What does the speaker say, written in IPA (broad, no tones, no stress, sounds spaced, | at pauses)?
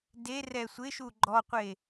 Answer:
d e r ɛ sʷ ɪ ʃ u ɡ͡ǃ ɔ qʷ e